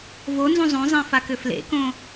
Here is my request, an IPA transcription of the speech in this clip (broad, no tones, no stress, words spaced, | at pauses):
vonzũ zˤõzˤẽfakʏ flḛkõ